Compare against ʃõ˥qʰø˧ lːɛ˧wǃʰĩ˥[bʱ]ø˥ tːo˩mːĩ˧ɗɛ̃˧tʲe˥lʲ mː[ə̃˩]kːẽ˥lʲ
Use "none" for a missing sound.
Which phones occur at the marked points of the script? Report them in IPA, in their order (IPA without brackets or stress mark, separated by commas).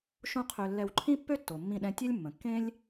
pː, ə̃˩